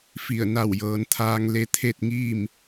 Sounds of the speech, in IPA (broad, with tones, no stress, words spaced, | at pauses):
fi˧˩ə̯ na˧˩wjɤː˩˧nt̪ʰaː˧ŋ le˧t̪ʰe˥˨t̚ŋiː˥˨m